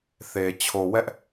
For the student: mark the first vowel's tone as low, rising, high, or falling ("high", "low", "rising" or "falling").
low